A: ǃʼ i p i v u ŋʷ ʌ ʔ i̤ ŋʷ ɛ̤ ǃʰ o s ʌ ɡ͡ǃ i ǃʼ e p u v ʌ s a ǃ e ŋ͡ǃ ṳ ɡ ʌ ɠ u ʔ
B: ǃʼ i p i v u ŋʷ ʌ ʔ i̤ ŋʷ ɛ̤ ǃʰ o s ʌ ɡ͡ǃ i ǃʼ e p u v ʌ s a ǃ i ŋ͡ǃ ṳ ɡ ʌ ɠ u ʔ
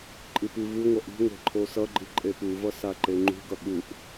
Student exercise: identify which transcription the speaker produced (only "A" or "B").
A